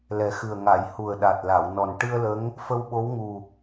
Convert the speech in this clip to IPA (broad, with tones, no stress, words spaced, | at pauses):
lɛ˨˩˦xɨ˨˩ə̯ ŋa˨˩˨j hu˨˩ə̯ ɗa˨˩t̚ la˨˩˨wnɔ˨˩n ʈɨ˧ə̯lə˧˥ŋ | fə˧wɓo˧˥wŋu˨˩